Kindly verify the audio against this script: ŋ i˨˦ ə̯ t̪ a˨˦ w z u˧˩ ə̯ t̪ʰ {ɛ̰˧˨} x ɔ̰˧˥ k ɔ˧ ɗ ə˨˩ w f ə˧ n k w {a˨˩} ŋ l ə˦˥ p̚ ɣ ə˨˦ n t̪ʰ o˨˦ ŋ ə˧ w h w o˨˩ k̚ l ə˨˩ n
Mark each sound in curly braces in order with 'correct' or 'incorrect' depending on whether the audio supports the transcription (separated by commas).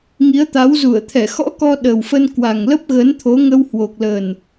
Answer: incorrect, correct